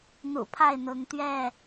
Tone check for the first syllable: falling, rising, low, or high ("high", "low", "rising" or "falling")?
low